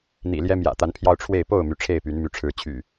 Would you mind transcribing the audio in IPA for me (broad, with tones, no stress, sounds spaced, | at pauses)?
n̪ ḭ˨˩ l j ɛ˦ m j ä̰˨˩ t̪ a˨˦ n pʰ j ɑ˧ ʊ̯ ʈ͡ʂʰ w e˥˨ ɪ̯ p o˥˨ ʊ̯ m y˩ ʈ͡ʂʰ e˥˨ ɪ̯ p y˨˦ n m y˨˦ ʈ͡ʂʰ ɻ̩˨˦ t͡ɕʰ y̰˨˩